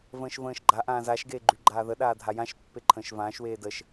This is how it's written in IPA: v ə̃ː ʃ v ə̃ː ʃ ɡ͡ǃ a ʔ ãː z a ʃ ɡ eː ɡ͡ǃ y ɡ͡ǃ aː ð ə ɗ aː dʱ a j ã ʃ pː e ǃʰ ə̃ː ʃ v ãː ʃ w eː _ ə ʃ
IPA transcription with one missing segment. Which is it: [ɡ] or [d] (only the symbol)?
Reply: d